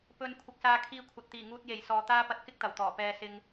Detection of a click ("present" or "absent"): absent